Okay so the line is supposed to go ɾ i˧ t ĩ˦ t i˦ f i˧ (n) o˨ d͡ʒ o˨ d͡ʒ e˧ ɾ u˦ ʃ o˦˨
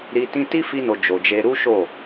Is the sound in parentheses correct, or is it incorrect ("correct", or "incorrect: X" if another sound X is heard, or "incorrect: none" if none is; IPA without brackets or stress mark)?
correct